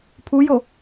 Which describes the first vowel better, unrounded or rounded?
rounded